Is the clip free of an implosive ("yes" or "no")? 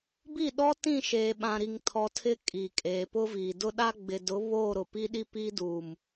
no